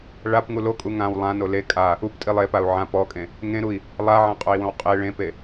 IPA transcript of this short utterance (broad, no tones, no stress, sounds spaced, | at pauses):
ɭ a p ŋ u l o kʼ u ŋ ã w lˠ ã n o l e kʼ a | u p tʼ i lˠ e p a u̯ ʕ ã p ɔ kʼ ẽ | ŋ ẽ ɾ u i̯ | lˠ a ʕ ã qʼ o i̯ w õ w qʼ e ɭ ẽ p e